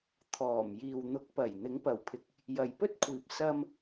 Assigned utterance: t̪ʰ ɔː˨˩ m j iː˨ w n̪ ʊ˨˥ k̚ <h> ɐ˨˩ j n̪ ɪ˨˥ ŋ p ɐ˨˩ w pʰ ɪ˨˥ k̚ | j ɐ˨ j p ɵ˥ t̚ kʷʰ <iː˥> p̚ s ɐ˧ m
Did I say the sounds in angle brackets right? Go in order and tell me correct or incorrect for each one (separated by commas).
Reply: incorrect, incorrect